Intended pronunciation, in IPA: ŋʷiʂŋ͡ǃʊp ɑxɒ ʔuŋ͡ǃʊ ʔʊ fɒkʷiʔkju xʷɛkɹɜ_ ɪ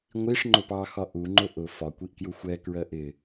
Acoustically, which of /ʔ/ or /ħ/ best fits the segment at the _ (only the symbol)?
ʔ